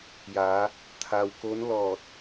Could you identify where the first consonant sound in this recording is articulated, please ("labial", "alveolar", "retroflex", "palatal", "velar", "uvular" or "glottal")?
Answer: palatal